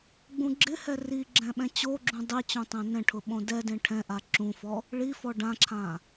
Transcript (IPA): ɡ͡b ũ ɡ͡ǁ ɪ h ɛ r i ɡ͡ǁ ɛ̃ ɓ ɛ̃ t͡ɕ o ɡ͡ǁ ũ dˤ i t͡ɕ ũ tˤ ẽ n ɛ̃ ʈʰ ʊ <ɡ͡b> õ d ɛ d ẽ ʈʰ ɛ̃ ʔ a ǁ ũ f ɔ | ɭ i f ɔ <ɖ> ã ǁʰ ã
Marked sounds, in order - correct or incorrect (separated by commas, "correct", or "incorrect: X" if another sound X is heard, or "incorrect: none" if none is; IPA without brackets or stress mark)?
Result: incorrect: ɓ, correct